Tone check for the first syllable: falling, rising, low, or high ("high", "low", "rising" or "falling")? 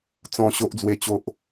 high